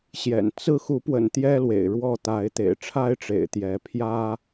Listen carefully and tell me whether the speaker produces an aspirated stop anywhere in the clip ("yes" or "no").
yes